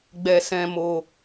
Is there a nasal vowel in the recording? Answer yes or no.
yes